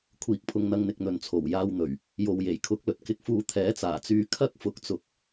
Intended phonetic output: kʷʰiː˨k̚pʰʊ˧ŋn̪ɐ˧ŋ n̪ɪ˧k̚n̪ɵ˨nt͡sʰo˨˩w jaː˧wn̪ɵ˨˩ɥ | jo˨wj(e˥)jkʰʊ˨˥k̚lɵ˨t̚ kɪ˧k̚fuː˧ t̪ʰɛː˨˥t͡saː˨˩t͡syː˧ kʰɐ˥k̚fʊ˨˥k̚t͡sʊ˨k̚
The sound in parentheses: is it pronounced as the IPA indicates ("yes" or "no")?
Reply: no